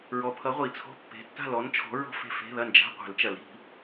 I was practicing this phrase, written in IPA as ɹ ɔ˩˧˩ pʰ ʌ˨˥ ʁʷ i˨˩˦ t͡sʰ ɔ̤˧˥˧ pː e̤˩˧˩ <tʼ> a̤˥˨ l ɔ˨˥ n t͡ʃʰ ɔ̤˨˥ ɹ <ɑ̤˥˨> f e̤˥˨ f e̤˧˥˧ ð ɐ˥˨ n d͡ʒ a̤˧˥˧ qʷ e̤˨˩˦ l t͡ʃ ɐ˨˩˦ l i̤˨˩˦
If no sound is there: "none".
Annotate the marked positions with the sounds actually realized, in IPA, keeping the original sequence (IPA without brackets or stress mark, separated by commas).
tː, ɔ̤˥˨